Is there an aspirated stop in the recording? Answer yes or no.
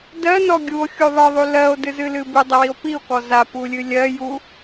no